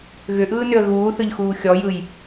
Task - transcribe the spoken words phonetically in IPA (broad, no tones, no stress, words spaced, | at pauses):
ɣʏʔɯːnʏə̯ ɣuːθɯʎxuː xʲɔjɯj